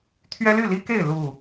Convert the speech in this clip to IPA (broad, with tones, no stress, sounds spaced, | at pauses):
t̪ʰ ɥ ɛ˦ l y˥˨ l i˦ k e˥˨ ɪ̯ l u˥˨